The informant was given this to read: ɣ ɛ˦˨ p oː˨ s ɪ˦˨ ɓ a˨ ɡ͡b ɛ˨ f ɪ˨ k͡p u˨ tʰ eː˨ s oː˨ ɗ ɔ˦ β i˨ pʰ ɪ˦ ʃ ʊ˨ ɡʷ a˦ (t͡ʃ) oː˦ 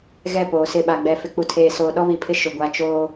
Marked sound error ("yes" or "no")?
no